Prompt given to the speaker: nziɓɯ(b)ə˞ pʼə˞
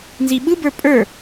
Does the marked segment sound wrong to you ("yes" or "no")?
no